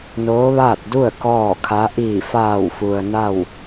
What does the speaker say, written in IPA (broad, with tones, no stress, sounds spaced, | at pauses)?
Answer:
n oː˧˥ ʋ aː˥˨ t̚ d u˥˨ ə̯ k ɔː˥˨ kʰ a˧˥ ʔ iː˧˩ f aː˧˩ w f u˩ ə̯ n a˥˨ w